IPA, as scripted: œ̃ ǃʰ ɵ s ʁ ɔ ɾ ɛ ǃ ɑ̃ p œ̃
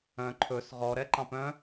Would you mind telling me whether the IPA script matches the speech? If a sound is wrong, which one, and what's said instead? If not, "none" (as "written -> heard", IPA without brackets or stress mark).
none